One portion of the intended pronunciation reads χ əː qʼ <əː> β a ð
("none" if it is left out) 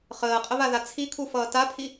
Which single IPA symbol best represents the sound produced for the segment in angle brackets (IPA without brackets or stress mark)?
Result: ə